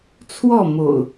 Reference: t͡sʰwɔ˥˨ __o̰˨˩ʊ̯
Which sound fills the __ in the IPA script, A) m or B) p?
A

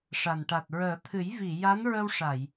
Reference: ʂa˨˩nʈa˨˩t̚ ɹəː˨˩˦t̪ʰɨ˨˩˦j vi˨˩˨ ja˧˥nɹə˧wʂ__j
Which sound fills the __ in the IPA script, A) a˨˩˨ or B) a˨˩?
A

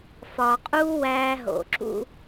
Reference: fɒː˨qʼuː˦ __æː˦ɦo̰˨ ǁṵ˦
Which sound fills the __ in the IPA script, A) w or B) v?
A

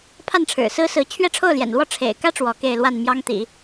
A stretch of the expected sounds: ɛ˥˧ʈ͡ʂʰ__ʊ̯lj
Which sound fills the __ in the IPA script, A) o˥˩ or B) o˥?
A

